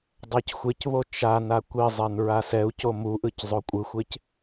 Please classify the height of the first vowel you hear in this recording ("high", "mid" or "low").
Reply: low